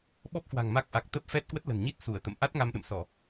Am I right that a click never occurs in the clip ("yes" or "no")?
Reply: yes